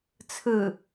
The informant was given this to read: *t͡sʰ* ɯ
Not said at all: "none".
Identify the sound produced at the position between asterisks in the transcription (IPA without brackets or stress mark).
t͡sʰ